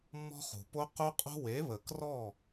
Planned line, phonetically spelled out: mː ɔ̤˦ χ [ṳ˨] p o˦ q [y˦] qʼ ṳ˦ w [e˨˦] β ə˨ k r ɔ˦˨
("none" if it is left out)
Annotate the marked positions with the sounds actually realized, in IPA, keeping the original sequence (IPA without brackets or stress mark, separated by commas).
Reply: ṳ˨, u˦, e˨˦